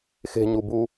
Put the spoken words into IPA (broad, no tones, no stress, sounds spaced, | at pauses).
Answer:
x e̤ ɲ u b u